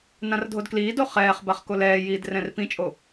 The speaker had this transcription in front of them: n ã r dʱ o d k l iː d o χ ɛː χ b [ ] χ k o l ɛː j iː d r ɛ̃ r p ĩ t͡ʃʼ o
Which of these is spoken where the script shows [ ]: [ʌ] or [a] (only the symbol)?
a